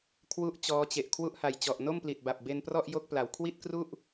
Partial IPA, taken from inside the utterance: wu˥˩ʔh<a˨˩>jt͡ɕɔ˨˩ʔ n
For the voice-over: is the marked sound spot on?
yes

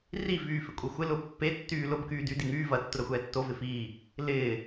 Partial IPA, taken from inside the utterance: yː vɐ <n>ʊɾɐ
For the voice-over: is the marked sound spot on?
no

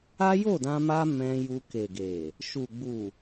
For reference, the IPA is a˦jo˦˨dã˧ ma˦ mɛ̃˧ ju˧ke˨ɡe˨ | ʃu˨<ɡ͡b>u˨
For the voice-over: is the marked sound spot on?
yes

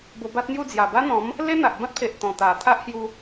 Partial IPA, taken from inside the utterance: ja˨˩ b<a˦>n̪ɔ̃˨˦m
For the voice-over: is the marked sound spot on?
yes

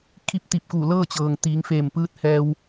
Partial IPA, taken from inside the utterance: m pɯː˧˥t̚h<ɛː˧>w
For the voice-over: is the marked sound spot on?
yes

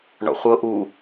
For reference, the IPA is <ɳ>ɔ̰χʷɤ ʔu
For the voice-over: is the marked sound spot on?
yes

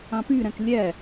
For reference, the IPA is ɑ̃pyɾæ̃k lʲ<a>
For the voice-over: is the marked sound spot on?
no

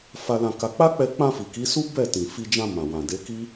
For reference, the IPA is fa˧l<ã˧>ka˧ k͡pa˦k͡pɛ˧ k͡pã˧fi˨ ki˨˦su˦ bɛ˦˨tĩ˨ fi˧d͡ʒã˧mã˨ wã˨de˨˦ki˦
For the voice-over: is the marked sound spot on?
yes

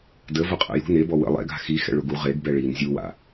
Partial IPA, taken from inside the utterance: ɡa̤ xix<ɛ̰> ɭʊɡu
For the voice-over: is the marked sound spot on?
yes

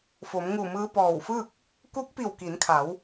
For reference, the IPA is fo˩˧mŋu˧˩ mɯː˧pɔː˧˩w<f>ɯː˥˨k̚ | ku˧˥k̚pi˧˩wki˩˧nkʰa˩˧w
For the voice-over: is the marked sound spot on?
yes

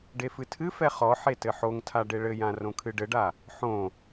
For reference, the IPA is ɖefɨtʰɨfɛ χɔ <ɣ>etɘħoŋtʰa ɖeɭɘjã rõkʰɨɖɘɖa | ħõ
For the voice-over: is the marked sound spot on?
no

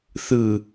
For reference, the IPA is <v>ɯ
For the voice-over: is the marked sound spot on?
no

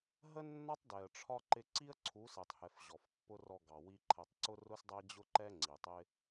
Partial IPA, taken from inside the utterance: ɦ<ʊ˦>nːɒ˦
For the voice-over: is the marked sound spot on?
no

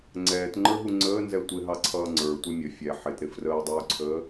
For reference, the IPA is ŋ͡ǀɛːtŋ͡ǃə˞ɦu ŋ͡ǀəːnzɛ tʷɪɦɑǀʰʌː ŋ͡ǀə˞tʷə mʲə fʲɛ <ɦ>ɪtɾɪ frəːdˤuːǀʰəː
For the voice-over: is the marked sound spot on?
no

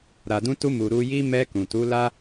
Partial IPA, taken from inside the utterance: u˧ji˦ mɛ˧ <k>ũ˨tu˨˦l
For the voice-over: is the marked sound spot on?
yes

